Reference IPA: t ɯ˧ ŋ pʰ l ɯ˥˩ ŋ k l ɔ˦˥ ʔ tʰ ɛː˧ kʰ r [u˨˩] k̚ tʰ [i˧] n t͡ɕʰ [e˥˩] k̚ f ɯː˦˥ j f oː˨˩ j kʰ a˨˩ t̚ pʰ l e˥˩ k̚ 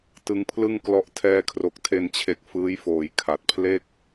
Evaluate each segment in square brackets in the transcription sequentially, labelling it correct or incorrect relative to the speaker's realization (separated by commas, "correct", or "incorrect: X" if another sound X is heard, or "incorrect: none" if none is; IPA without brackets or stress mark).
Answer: incorrect: o˨˩, incorrect: e˧, incorrect: e˨˩